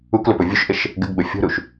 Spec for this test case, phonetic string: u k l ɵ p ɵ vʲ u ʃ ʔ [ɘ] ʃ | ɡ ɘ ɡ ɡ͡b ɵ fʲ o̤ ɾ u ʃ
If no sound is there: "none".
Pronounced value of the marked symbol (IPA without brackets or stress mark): ɘ